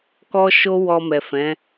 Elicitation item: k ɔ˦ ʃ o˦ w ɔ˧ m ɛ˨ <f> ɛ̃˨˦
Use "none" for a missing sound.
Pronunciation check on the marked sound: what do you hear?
f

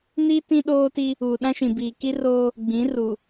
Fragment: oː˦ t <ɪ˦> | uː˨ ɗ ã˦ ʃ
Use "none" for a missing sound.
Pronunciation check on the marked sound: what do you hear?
i˦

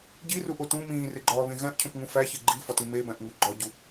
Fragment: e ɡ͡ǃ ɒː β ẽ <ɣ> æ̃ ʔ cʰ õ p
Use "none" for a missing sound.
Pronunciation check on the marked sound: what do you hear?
ɣ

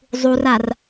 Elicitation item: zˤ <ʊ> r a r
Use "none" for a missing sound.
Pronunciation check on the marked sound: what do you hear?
u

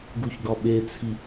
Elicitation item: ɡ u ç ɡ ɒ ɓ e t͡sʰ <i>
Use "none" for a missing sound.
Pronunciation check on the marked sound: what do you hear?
i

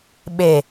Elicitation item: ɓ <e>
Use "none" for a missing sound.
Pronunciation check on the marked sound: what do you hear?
e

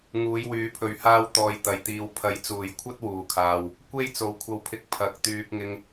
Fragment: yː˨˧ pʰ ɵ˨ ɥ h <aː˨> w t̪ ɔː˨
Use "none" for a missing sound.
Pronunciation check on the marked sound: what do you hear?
aː˧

